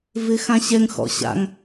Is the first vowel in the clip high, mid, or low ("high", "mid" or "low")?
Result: high